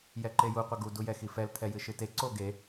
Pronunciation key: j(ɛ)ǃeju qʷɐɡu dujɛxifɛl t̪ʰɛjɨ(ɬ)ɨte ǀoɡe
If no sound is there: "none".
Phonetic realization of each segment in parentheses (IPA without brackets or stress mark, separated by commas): ɛ, ʃ